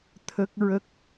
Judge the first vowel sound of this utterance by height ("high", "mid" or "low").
mid